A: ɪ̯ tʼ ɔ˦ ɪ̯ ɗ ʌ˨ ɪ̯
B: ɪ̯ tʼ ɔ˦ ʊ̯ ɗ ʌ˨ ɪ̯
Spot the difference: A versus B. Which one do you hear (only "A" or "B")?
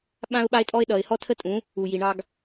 A